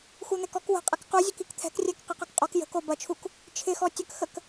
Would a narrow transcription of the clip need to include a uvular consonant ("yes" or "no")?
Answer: yes